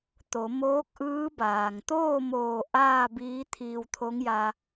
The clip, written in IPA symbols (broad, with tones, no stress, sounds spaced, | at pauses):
t̪ o˩˧ m oː˧˥ k̚ ʔ ɯː˧˥ b aː˩ ŋ t̪ oː˥˨ m oː˧˩ ʔ aː˥˨ b iː˧˥ t̪ʰ iː˧ w t̪ʰ o˧˥ ŋ j a˧